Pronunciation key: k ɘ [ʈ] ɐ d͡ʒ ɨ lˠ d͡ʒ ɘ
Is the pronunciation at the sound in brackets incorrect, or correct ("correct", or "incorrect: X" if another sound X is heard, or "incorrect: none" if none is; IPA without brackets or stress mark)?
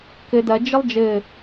incorrect: d